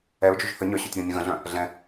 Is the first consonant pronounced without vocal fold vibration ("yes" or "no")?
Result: no